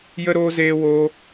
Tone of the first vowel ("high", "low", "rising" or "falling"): high